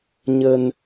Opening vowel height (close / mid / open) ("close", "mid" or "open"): mid